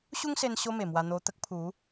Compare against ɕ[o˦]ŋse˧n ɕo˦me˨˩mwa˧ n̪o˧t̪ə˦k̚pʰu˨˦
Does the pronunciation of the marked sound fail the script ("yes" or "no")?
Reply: yes